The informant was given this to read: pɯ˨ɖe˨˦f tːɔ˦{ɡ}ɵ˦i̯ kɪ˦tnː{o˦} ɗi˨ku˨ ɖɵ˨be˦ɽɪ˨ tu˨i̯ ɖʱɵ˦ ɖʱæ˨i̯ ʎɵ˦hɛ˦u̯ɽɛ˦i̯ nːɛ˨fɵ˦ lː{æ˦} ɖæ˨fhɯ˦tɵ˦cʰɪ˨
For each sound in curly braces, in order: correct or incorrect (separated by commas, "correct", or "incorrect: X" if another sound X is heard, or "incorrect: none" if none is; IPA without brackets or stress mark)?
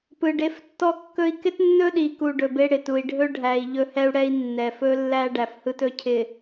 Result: incorrect: kː, incorrect: ɵ˦, correct